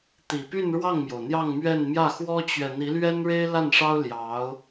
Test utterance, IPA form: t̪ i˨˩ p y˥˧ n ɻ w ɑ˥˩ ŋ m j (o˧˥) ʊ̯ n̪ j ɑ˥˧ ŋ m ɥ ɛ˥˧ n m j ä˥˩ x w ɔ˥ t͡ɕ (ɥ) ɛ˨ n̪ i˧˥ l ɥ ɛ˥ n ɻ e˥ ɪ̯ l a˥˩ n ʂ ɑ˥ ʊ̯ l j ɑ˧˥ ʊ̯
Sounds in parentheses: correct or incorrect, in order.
incorrect: o˩, correct

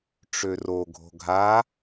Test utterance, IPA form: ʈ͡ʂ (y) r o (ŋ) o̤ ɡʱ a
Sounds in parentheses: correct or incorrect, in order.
incorrect: ø, incorrect: ɡʱ

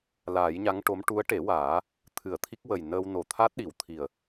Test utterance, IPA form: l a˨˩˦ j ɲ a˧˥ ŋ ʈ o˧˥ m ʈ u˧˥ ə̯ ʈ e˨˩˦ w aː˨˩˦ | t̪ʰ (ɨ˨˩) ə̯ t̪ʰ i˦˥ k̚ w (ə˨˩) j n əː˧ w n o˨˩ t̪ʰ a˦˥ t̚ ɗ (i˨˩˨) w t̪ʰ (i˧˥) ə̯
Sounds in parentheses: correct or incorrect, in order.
incorrect: ɨ˨˩˨, correct, correct, incorrect: i˨˩

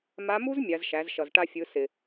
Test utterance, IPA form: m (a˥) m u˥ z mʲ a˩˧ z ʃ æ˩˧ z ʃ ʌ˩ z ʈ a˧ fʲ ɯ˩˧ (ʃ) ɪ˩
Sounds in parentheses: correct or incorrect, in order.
incorrect: a˧˥, incorrect: s

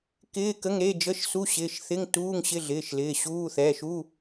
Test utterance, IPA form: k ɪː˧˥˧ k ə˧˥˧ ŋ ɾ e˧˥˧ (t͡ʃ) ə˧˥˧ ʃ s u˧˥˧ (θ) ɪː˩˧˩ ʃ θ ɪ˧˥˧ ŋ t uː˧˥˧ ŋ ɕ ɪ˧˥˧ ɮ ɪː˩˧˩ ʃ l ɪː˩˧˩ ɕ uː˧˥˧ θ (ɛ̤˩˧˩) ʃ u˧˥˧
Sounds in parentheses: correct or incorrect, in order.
incorrect: d͡ʒ, incorrect: ɕ, incorrect: ɛ˩˧˩

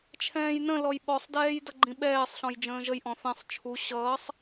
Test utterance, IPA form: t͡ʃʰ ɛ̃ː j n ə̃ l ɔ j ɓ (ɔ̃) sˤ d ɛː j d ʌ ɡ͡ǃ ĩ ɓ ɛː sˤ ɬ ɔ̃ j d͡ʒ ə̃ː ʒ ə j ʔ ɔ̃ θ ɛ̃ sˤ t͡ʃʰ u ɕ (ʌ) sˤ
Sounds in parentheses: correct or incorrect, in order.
incorrect: ɔ, incorrect: ʌː

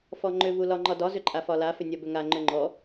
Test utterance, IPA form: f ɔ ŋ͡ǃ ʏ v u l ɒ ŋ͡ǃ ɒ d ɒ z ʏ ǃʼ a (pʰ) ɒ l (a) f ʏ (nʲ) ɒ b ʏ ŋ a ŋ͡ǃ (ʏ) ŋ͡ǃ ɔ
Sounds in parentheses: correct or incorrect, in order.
incorrect: f, correct, correct, correct

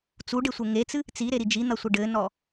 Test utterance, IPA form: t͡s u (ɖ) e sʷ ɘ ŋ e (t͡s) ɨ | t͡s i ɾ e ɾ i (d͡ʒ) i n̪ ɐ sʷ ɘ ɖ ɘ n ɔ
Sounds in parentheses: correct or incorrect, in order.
correct, correct, correct

